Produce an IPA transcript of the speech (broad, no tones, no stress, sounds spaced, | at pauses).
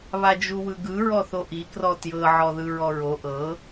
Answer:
β a d͡ʒ u w ɯ ɡ ɯ ɹ ɔ θ o ʔ i k r ɔ t j ɤ ʕ ɔ ð ɯ ɹ ɔ ɹ o ʔ ɤ